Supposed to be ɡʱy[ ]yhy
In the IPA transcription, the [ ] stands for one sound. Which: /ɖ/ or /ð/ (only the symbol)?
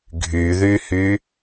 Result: ð